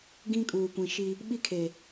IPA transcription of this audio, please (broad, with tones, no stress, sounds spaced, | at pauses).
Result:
ɡ ĩ˦ kʼ uː˨ kʷ ĩ˨ ʃ i˦ | ɓ i˦ kʰ e˨